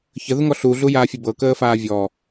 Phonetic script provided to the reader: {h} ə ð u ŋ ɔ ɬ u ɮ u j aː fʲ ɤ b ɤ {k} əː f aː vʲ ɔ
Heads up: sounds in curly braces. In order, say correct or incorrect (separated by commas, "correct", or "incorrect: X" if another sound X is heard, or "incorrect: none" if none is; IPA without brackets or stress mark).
incorrect: ç, correct